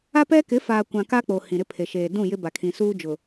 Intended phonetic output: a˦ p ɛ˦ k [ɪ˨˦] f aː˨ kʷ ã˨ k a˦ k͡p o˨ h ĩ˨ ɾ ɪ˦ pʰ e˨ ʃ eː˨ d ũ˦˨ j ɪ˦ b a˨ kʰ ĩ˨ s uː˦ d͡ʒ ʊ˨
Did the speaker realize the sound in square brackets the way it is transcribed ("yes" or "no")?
yes